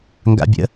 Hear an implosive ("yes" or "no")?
no